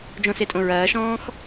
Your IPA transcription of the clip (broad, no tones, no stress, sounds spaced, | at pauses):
d͡ʒ õ s e tʼ õ ɹ ɐː ʃ ɔ̃ː x